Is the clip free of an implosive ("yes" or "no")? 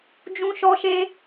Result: yes